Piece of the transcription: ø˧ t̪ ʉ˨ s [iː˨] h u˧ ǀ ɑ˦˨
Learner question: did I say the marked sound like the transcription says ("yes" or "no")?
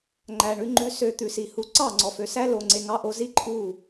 no